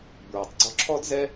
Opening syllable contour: low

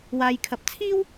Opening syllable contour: low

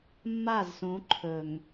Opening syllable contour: falling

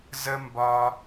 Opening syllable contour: high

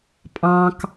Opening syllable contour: high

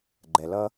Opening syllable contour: low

